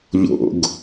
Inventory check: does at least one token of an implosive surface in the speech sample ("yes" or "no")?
no